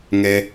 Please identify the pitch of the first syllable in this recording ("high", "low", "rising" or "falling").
high